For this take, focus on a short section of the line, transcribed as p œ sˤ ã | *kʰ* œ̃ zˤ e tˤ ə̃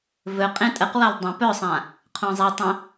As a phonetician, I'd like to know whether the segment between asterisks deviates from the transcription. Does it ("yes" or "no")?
yes